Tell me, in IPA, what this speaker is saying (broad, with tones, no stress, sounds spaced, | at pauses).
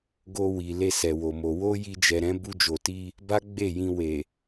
ɡ o˧ w i˨ l e˧ s ɛ˨ w o˨ m o˨ w o˧ j i˧ d͡ʒ ɛ˨ ɾ ɛ̃˨˦ b u˧ d͡ʒ o˨ t i˧ | b a˦ ɡ͡b e˦˨ j ĩ˧ w e˨